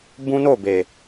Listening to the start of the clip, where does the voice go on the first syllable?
high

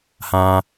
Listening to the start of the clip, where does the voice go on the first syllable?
low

